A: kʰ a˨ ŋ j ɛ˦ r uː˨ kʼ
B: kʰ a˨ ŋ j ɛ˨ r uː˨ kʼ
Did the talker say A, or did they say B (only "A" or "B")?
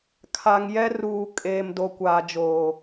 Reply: A